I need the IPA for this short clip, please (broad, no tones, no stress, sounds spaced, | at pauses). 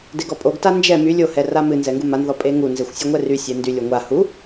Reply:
d e ɡ ɔ pʼ o ɡ t a n d͡ʒ ɛ m y lʲ o h ɛ r a m ɨ n z ɛ ŋ ɡ u m a n ð ɔ pʼ e ŋ u n z e xʷ sʲ o ŋʷ ɛ r y sʲ ɛ n d y lʲ o ŋʷ a h u